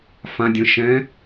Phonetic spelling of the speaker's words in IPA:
f ã dʲ ə̃ ʃ ɛ̃

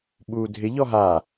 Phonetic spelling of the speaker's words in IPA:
ɓ uː dʱ ɪ ʎ ɔ ɦ aː

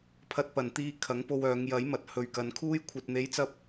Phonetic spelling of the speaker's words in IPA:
pʰ ɐ˨ t̚ p ɐ˨˩ n t̪ iː˨ kʰ ɐ˨˥ ŋ p o˧ w œː˨˧ ŋ j ɐ˨˥ j m ɐ˨ t̚ h ɵ˨ ɥ k ɐ˨˧ n kʰ uː˧ j kʷʰ ɐ˨ t̚ n̪ e˨˥ j t͡s ɐ˥ p̚

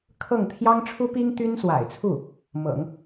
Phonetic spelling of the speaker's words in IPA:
kʰ ɤ˥˩ ŋ t̪ʰ j ɑ˥ ŋ ʈ͡ʂʰ u˥ p i˥ ŋ t̪ y˥ n s w a̰˨˩ ɪ̯ t͡sʰ u˥˩ | m ɤ̰˨˩˦ ŋ

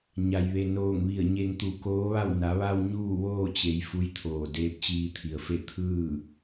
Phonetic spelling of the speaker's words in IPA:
ɲ a˩ j ʋ e˩ n oː˧˩ ŋ ʋ i˧˩ ə̯ ɲ e˧ ŋ t̪ u˧˩ k oː˧˥ ʋ a˥˨ w n a˩˧ ʋ a˧ w ɲ uː˥˨ ʋ oː˥˨ t͡ɕ e˩˧ j f u˧˥ j t̪ʰ oː˧˩ d eː˧˥ p̚ t͡ɕ iː˧ t̪ʰ i˩ ə̯ f e˥˨ t̪ʰ ɯː˥˨

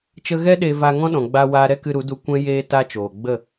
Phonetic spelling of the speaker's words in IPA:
t͡ʃ ə˧ ɣ ɛ˦ ɗ e˧ v a˧ ŋ ɔ̃˦ ɗ ɔ̃˨ ɡ͡b a˧ w aː˧ ɾ ɛ˦ k ɨ˧ ɾ u˨˦ d u˧ kʷ ɛ̃˦ j eː˧ t a˦ t͡ʃ oː˨ ɡ͡b ə˦˨

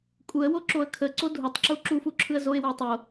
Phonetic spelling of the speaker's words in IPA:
kʼ u ə̯ w o ǁ o ə̯ kʰ ə ǀ o dʱ u tˤ ǁ u ǁ u f u ǁʰ ɯ ə̯ z o ɪ̯ w ə ʊ̯ tˤ o

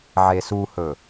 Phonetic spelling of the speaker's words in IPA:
ʕ e s u h ɵ

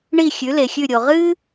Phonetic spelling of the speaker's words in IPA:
ɳ i˦˨ xʲ ʉ˨˦ l e˨ xʲ ʉ˦˨ ɾʲ o˨ ʁ ɨ˥

